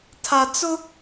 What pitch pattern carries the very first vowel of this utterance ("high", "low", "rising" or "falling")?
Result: low